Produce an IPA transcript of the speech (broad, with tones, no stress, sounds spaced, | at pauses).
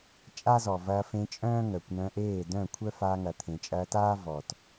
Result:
t͡ʃʼ a˦ z ɔ˨ v ɐː˧ f ẽ˧ t͡ʃʼ œ̃ː˦ ŋ œ˨ kʷ n œ̃˧ ʔ eː˦˨ d œ̃˦˨ kʷʰ œ˦ f a˧ ŋ ɐ˨ t̪ʰ ẽ˨ t͡ʃʼ ɐː˧ t aː˦ v ɔ˨ t